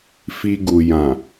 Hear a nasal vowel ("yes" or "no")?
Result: yes